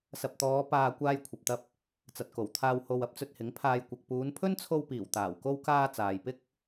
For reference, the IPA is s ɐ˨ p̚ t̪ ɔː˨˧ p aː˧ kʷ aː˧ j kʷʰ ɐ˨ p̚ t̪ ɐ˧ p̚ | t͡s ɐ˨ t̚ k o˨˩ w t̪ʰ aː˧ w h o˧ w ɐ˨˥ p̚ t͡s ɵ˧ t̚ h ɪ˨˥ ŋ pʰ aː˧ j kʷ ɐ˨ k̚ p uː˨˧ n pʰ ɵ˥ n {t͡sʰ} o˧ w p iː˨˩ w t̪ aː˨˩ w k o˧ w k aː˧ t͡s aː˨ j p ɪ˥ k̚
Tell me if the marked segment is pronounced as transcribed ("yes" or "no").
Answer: yes